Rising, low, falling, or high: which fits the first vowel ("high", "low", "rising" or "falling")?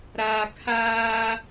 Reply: low